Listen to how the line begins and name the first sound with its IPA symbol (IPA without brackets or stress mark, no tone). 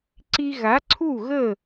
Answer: ǀ